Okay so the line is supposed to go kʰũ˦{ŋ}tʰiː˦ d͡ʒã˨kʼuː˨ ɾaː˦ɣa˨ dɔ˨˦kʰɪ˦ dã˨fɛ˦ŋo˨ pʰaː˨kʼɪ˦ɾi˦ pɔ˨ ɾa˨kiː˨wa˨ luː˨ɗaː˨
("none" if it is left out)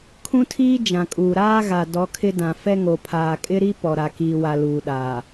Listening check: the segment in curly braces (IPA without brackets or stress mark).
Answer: none